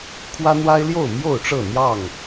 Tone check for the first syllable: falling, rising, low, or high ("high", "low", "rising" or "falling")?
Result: high